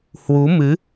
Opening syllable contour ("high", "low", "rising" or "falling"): rising